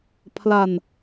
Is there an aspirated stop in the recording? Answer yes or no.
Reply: yes